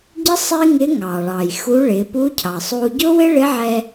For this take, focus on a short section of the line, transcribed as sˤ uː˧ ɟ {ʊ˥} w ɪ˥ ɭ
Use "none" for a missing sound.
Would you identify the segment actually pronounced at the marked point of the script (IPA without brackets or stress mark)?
ʊ˥